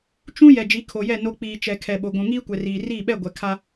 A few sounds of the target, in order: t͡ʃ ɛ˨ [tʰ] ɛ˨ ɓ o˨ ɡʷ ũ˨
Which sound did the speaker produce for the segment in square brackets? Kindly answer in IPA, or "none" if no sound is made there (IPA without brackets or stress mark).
kʰ